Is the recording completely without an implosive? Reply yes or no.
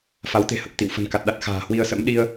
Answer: no